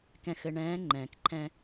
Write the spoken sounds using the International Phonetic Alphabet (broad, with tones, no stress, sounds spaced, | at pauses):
k ɛ̃˨ x ɘ˨ ɳ ɛ̃ː˨˦ ŋ͡ǃ ɛ̃ː˨ k ǃʰ ɛ̃˦